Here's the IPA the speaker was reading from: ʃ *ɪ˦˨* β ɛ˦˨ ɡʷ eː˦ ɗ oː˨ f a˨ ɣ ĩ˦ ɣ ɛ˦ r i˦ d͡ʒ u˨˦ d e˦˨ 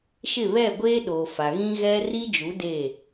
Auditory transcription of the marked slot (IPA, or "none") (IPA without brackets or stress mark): ɪ˦˨